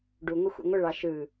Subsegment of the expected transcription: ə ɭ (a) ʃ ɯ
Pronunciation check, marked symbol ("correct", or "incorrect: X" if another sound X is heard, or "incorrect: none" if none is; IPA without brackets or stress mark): incorrect: ɑ